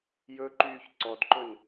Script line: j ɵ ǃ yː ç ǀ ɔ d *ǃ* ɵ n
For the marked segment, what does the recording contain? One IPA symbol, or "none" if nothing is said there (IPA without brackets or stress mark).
ǃ